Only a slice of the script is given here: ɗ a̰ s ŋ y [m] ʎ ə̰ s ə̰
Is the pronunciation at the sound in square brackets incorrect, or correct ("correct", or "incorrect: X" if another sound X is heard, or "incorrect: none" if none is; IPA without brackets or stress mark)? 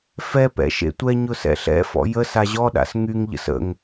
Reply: incorrect: ŋ